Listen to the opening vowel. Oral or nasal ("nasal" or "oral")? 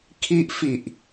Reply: oral